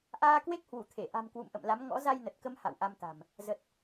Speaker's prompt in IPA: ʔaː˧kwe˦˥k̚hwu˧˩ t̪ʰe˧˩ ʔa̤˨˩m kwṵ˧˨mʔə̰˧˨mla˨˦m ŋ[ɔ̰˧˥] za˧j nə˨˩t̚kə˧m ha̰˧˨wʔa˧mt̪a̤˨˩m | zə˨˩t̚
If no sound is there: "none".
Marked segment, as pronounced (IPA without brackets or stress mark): ɔ̰˧˥